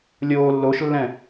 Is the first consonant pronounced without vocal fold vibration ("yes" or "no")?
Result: no